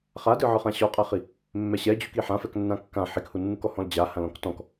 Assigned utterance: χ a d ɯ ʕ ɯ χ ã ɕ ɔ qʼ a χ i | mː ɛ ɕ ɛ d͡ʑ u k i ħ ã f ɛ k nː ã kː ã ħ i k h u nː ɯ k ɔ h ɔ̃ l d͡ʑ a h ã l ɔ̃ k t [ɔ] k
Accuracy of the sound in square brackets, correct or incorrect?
incorrect: ɔ̃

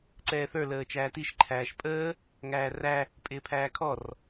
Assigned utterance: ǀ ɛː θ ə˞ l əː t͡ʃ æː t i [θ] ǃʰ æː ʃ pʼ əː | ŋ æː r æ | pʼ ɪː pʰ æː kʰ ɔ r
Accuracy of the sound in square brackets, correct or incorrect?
incorrect: ʃ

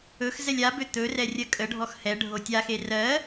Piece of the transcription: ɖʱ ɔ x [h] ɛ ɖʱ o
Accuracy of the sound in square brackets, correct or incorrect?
correct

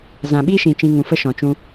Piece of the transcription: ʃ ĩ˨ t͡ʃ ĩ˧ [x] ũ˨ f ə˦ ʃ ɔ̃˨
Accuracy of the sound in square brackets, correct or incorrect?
incorrect: ŋ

